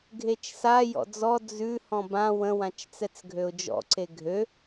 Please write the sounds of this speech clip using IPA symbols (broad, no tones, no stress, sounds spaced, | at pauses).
ɡʱ e t͡ʃ s a j ɔ̰ d͡z ɔ d͡z ʉ h ɔ̃ b ã w ə̃ w ã t͡ʃ t͡s ɛ t͡s ɡʱ ø ʊ̯ d͡ʒ ɔ̰ ǀ e ɡʱ ø